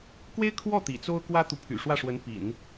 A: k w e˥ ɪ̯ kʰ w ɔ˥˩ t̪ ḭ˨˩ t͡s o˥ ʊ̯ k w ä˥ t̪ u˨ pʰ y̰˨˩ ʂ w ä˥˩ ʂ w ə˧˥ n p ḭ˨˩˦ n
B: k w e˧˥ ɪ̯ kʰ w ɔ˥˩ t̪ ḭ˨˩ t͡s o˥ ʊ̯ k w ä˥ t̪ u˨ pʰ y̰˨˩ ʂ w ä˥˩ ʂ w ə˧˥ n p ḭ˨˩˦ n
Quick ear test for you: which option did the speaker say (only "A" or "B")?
A